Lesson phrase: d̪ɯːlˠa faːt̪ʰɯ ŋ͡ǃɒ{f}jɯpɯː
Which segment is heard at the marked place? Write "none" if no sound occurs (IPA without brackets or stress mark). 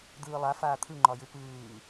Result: none